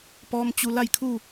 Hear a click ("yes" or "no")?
no